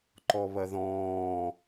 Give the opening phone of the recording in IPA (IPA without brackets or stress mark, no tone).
ǃ